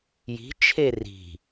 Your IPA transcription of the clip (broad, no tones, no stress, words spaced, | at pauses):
ji̤ t͡ʃʰeri̤